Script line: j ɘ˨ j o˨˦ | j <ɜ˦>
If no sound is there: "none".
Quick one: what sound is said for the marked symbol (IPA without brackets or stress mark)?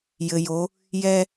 ɛ˦